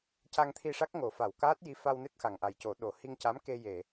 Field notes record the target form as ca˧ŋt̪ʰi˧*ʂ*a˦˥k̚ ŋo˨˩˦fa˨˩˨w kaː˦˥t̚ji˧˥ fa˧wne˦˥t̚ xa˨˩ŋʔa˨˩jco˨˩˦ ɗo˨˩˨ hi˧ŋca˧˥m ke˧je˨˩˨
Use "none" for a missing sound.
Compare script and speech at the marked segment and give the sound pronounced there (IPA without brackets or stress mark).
ʂ